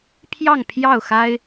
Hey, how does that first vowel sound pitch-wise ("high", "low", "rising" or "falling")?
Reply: falling